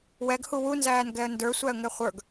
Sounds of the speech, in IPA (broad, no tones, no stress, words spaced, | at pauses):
wɛɡ huwu nzæːnɡɛə̯ndə˞ sʷæə̯ŋɛχʷə˞ɡ